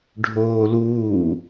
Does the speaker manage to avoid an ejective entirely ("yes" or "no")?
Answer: yes